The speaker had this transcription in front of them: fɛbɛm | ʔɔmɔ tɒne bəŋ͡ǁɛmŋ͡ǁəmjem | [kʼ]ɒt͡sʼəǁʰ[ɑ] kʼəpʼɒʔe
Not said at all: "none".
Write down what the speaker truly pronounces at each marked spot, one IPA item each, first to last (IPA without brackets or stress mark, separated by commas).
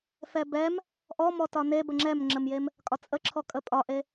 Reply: kʼ, ɔ